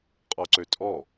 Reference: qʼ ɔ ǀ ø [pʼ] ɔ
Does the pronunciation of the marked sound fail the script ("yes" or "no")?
yes